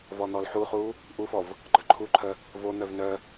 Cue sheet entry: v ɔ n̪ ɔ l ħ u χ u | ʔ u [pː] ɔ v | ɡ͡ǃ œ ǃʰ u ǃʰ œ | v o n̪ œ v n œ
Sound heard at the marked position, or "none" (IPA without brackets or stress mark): f